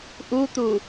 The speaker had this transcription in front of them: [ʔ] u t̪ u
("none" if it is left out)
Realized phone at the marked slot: ʔ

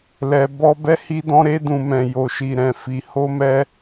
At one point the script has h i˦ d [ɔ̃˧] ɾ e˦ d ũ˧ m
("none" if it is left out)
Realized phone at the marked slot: ɔ̃˦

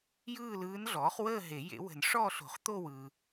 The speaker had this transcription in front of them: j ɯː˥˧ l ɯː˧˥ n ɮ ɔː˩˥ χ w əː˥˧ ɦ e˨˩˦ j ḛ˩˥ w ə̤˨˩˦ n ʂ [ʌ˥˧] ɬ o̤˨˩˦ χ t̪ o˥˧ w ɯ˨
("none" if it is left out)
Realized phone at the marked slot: ɔ˥˧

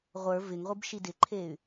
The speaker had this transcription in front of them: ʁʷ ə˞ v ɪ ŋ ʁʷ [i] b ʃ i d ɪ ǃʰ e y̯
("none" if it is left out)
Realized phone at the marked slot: i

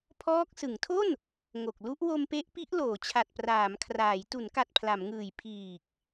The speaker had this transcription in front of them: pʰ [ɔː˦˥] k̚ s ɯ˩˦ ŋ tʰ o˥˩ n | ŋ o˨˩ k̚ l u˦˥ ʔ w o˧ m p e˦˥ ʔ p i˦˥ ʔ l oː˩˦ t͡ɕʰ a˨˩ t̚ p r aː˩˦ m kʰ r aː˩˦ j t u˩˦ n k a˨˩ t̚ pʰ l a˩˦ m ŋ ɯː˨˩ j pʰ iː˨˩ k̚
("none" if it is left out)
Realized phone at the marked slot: ɔː˦˥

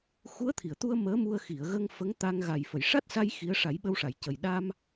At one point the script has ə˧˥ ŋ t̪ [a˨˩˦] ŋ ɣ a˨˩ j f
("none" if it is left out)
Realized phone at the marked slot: a˧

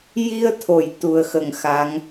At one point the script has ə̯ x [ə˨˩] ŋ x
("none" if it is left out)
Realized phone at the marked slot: ə˨˩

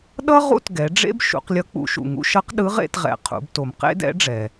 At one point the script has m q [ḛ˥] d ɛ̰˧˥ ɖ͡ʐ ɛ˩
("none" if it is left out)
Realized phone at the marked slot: ḛ˥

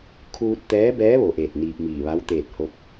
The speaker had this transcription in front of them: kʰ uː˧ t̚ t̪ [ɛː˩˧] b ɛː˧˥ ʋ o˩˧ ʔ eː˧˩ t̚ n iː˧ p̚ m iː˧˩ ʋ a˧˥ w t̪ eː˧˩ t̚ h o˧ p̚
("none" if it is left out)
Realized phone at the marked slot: ɛː˧˥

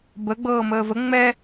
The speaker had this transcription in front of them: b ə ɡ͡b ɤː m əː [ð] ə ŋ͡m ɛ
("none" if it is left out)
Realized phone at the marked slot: v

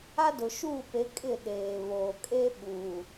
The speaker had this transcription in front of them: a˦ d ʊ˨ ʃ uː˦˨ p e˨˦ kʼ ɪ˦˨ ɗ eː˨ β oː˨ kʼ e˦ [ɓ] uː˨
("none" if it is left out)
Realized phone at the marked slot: ɓ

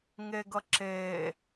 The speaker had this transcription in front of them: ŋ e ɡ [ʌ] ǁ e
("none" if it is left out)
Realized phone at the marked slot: ʌ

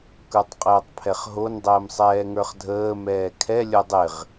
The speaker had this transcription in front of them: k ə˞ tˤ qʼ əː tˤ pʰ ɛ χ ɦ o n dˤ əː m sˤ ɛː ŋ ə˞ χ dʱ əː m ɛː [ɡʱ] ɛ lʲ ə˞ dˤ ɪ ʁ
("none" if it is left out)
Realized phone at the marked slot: kʰ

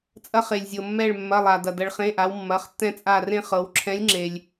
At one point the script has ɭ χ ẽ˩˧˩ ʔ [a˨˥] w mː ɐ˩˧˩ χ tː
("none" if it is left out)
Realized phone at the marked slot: a˩˧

